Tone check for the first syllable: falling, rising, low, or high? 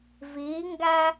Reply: rising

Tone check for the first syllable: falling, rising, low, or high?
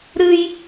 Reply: high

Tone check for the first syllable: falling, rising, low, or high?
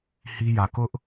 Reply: high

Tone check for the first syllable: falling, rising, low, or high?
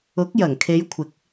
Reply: rising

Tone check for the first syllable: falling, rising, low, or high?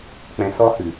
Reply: low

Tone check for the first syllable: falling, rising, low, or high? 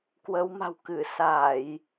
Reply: rising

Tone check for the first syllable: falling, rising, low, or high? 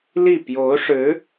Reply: falling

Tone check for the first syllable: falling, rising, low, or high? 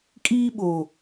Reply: high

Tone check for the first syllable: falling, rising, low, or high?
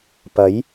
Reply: rising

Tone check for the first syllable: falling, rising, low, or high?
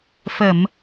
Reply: low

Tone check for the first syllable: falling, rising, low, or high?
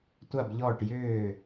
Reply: falling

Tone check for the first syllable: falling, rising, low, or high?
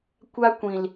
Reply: high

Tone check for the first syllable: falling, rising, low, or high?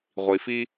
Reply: low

